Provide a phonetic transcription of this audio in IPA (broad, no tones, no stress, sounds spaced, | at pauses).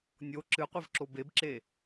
nʲ o ǁ ɨ qʷ e v ǁ o b e b ǁ e